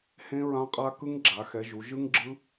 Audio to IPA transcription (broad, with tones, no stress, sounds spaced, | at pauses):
h ẽ˦˥ ɹ ã˦˥ qʼ a˦˥ k ɯ˦˥ ŋ ɡ͡ǁ a˩˧ x ɛ˩˧ ʒ u˩˧ ʒ ɯ˦˥ ŋ ɡ͡ǁ ɯ˦˥